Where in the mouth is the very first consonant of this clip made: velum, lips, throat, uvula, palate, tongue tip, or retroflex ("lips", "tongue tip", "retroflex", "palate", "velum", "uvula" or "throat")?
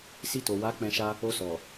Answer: tongue tip